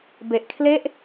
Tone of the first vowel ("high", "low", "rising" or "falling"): low